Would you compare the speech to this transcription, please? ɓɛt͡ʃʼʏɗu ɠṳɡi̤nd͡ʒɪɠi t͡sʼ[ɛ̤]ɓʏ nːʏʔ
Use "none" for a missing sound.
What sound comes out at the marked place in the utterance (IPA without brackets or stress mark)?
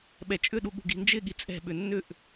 ɛ̤